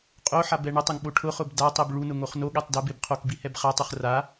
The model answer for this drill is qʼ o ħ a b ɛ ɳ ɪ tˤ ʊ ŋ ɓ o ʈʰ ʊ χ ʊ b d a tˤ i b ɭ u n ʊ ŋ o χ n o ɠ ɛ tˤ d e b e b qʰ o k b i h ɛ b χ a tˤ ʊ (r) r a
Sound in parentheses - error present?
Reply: yes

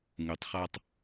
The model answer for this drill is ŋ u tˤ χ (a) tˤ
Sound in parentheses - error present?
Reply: no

